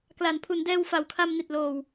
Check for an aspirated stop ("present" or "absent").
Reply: present